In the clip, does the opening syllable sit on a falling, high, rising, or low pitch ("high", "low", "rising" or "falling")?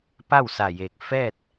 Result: falling